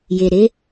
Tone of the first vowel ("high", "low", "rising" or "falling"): low